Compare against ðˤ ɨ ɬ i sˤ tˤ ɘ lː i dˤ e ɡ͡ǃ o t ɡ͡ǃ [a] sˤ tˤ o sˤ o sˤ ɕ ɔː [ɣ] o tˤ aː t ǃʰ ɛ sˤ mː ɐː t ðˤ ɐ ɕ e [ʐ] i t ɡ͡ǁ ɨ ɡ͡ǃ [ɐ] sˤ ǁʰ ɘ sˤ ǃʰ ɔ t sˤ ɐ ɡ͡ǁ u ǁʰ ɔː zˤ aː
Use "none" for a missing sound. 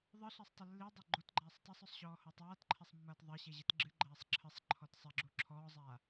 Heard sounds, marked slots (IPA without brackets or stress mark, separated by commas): aː, h, ʑ, ɐː